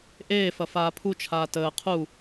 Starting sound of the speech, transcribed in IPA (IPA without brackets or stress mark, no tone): ʔ